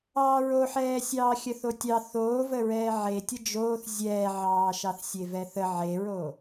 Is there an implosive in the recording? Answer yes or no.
no